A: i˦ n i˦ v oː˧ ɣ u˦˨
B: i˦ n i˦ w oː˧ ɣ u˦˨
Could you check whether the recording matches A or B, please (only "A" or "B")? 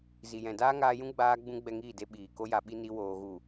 B